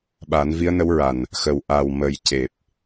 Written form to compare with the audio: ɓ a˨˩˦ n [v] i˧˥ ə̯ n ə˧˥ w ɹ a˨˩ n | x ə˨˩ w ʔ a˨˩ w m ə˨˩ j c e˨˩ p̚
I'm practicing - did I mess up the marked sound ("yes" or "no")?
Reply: no